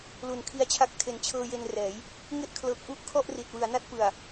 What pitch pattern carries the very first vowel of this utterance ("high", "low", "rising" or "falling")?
low